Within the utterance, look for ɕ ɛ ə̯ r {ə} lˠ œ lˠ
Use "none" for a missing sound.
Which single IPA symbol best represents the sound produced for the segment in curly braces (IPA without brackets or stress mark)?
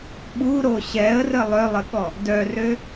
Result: ə